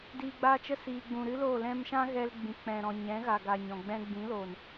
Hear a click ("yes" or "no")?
no